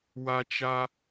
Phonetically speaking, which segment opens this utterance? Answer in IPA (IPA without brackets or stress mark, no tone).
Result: w